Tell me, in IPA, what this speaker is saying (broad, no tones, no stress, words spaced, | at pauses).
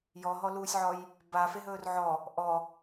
jɔɦɔluːsʲʕɔj | bafeɦɵːr ʕɔ | ʔɔ